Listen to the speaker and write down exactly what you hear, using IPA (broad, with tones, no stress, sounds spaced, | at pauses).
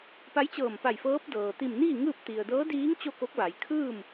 p a˧˥ j t͡ɕ ɤː˧˩ m p a˧˩ j f ɤː˧˥ p̚ d ɤː˩ t̪ i˧˩ m n iː˥˨ ŋ ɯː˥˨ p̚ t̪ i˩ ə̯ d ɤː˧˥ d iː˧˥ ŋ t͡ɕ o˥˨ k o˧˥ k̚ ʋ a˩˧ j kʰ ɯː˥˨ m